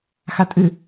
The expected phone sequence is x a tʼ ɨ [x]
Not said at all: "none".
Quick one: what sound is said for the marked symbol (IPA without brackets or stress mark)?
none